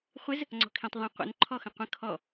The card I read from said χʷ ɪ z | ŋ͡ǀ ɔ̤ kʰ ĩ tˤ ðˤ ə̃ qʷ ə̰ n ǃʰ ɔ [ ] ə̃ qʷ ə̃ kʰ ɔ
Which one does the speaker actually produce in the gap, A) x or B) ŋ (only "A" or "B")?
A